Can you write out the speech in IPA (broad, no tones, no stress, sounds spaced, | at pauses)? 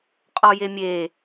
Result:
qʼ ɔ j e mʲ e